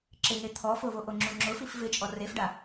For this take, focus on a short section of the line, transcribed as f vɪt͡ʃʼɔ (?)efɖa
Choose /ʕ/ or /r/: r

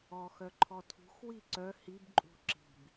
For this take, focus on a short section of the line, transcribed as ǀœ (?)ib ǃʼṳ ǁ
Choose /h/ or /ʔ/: h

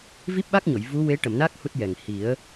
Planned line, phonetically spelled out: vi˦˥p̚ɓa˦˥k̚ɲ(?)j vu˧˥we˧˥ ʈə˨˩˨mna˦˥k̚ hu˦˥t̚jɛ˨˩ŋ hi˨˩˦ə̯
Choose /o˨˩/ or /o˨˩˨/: o˨˩˨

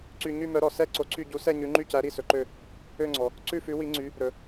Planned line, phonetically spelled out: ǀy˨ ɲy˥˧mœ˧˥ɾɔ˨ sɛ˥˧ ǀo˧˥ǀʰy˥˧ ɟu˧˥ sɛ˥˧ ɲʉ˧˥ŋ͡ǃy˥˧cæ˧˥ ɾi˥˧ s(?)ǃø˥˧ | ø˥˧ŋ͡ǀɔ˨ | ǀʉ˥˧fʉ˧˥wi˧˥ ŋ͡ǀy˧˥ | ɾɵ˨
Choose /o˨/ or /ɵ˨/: ɵ˨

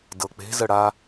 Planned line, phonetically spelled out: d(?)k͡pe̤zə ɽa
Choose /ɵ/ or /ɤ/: ɤ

